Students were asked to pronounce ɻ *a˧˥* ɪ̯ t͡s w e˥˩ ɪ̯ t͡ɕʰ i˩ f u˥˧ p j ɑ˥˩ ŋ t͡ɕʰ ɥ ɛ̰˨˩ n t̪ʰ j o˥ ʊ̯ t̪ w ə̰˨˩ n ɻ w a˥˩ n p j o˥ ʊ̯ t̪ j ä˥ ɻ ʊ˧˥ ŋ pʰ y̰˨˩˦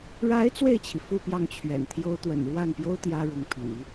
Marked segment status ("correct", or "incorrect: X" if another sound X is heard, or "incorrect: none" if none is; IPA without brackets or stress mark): correct